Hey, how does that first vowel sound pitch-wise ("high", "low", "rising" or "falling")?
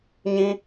high